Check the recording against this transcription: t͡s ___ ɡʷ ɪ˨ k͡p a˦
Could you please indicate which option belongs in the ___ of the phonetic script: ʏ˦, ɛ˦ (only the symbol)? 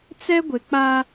ɛ˦